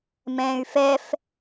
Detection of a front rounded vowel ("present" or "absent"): present